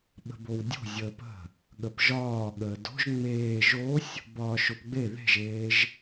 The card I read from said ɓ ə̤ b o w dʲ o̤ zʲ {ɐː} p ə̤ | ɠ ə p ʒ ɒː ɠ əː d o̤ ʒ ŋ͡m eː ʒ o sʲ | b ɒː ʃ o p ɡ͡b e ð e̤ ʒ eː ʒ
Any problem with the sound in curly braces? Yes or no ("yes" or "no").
yes